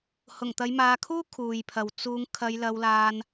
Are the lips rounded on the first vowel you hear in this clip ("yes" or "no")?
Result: yes